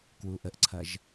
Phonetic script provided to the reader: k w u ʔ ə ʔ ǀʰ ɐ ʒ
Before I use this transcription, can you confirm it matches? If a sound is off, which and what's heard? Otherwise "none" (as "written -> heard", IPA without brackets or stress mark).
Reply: none